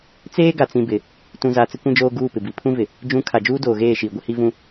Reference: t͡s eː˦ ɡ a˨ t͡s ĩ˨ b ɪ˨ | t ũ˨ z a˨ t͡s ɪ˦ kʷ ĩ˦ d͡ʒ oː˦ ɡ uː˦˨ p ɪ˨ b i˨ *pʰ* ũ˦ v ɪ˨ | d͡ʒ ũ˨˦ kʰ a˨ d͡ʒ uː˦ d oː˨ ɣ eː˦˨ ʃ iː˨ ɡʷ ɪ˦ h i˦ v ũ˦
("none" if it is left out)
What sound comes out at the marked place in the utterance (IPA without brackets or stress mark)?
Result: pʰ